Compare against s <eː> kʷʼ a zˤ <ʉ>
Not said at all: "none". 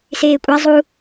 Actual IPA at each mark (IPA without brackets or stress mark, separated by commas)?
eː, u